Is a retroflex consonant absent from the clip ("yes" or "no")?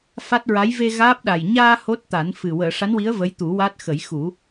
no